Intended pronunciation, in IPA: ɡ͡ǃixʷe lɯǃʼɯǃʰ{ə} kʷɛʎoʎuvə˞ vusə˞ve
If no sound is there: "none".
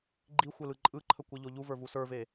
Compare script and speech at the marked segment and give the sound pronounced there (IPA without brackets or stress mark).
ə